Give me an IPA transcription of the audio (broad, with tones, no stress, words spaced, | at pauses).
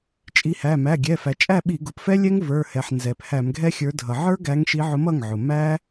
t͡ʃʼi˨˦hæ˩˧˩ mæ˩˧˩ɡʲɛ˩˧˩ fæ˩t͡ʃʼæ˥˩ ɓi˧˩˧ɡʊ˩˧˩pfɛ˦˥lʲɛ˦˥ŋ və˞˩˧˩hɛ˩ħ nzɛ˩p hæ˧˩˧mɡʱɛ˦˥xʲə˞˨˦dʱʌ˩ ʕə˞˦˥ɡæ˨˦ŋʃi˨˦ ʕʊ˨˦mʌ˩˧˩ŋʕʊ˩ mæ˦˥